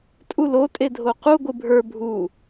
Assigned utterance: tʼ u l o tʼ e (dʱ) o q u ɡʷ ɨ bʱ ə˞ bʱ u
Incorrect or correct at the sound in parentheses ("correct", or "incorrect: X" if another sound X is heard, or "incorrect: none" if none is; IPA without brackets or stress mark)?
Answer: correct